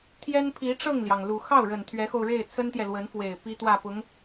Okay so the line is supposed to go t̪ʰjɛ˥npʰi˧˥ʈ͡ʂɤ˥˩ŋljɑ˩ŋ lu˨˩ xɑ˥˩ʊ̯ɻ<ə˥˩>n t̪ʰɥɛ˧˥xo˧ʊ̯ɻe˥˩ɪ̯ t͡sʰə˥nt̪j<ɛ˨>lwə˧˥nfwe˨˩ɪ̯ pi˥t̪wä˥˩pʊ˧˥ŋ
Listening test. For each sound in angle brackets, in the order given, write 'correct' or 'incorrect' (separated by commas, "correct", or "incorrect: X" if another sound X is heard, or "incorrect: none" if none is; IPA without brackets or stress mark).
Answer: incorrect: ə˨˩, correct